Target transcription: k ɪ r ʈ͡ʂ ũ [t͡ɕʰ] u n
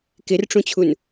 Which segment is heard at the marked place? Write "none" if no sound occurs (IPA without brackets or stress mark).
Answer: t͡ɕʰ